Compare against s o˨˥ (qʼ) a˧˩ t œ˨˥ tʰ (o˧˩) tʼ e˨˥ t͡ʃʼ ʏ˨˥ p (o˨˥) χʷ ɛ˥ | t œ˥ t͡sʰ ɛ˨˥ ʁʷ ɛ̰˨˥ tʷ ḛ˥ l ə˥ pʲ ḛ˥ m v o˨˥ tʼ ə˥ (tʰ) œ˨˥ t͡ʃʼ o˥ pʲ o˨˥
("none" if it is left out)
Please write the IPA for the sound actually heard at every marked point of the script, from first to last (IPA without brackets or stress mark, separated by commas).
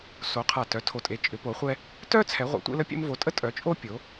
qʰ, o˧˩, o˨˥, tʼ